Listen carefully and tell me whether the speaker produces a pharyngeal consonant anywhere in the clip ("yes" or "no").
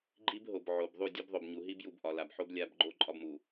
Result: yes